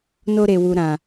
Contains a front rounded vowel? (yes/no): no